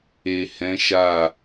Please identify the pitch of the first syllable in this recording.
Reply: low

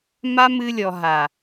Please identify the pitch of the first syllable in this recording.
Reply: high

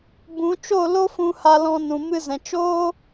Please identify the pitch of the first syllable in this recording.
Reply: rising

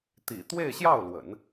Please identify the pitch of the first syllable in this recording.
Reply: low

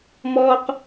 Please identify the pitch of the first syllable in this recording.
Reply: high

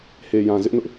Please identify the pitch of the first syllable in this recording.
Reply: low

